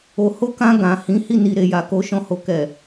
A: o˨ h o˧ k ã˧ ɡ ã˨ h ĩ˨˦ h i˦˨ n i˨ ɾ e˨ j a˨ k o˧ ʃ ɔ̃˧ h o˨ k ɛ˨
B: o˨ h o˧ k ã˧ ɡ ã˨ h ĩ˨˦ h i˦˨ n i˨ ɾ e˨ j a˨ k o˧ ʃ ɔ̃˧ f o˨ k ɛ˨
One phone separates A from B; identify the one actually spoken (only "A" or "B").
A